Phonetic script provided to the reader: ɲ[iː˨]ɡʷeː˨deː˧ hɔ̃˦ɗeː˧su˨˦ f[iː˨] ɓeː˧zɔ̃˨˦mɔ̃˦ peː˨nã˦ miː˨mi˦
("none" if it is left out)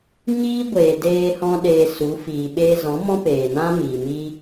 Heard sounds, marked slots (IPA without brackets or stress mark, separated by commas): iː˦, iː˨